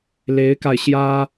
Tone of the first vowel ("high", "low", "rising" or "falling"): rising